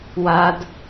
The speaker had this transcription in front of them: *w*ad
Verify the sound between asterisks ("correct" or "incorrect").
correct